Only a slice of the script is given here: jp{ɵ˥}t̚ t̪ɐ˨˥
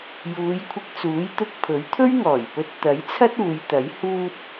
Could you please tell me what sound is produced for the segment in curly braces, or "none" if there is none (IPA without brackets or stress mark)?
ɵ˧